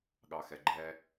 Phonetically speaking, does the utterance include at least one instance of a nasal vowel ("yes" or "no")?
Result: no